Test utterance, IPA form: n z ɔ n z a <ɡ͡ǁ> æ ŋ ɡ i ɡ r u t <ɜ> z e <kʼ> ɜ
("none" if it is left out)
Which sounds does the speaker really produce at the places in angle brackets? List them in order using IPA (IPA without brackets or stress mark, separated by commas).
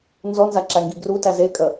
ǁ, æ, kʼ